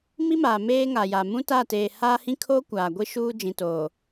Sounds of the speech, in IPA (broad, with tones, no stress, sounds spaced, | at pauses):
m i˦ m aː˨ m eː˦ ŋ a˨ j a˨ m ũ˦ t a˦˨ t eː˨ h aː˦ h ĩ˦ kʰ oː˦ kʷ aː˨ ɡʷ i˦ ʃ uː˦ d͡ʒ ĩ˨ t oː˨